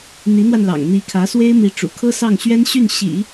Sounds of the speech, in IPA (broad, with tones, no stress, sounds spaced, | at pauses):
n̪ i˧˥ n̪ w a˧ n l ɑ̰˨˩ ŋ n̪ i˧˥ kʰ ä˧˥ s w e˥ ɪ̯ m i˧˥ ʈ͡ʂ ṵ˨˩ kʰ ɤ˥ s ɑ˥˩ ŋ ɕ ɥ ɛ˥ n ɕ y˥˩ n ɕ ḭ˨˩˦